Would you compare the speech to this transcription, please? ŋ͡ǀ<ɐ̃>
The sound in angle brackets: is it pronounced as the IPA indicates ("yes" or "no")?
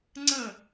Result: no